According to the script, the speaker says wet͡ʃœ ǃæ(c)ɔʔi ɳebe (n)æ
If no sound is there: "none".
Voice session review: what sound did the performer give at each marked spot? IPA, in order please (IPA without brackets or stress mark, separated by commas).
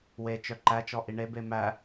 t͡ʃ, m